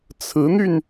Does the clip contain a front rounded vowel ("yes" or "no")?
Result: yes